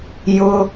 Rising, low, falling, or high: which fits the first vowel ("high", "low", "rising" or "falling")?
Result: high